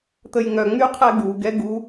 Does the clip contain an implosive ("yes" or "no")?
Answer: no